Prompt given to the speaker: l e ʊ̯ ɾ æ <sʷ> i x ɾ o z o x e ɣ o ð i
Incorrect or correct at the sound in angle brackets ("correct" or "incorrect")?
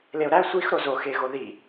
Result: correct